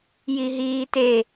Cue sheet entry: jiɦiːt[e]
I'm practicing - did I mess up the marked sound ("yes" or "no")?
no